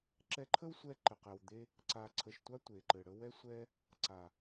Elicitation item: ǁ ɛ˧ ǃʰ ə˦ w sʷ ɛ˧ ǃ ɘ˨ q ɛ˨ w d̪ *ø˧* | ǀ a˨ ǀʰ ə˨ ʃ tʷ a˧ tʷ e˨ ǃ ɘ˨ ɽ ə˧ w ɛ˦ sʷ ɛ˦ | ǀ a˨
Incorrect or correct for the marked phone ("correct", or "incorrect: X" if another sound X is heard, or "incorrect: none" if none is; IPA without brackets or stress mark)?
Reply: incorrect: e˧